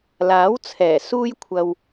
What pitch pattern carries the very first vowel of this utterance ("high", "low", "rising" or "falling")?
rising